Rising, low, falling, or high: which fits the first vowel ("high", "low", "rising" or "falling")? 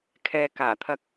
low